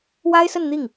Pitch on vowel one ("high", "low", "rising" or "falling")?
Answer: high